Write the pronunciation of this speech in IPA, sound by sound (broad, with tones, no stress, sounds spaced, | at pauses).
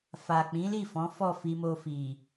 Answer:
f a˨ k͡p ĩ˨˦ l i˦˨ f ɔ̃˨˦ f ɔ˦˨ f i˧ m o˧ f i˨